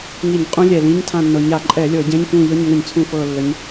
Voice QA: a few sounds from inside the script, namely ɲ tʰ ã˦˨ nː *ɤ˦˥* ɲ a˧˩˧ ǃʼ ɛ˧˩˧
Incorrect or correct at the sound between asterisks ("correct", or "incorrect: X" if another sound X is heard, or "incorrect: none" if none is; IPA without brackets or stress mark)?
incorrect: ɤ˨˩